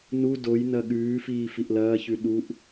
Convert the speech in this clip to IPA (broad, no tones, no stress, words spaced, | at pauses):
nu doj nɐɠʉːfiː fiʔlɐːçʉ ɗuʔ